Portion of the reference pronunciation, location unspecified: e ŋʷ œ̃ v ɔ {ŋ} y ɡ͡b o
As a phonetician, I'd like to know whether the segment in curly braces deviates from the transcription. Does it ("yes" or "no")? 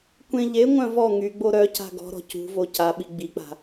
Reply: no